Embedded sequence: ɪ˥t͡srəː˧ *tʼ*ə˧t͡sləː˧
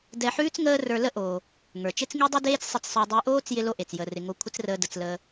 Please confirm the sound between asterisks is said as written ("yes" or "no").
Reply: no